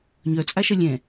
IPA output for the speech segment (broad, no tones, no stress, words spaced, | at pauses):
ɲœt͡sʼaʃɐ lʲɛ̃